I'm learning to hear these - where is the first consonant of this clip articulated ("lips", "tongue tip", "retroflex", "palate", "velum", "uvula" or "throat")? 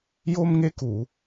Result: palate